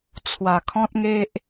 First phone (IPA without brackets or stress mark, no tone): t͡sʰ